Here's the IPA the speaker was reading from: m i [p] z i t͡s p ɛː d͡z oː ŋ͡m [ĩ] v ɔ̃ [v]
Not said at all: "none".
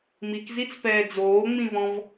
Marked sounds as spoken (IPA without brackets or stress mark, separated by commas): k, ĩ, v